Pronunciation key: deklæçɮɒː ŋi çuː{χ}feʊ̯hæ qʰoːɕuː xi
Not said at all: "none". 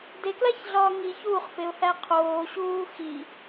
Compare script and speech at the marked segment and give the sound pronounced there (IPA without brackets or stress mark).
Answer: χ